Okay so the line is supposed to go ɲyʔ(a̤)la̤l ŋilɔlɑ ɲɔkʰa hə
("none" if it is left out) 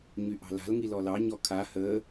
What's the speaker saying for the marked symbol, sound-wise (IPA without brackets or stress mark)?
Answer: ɑ̤